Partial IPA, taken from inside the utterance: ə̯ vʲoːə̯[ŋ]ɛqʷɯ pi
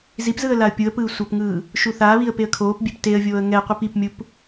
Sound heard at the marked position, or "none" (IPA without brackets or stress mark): ŋ